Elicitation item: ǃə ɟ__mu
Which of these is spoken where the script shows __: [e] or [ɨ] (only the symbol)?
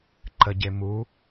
e